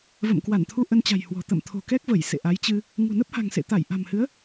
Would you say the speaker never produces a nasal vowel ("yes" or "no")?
yes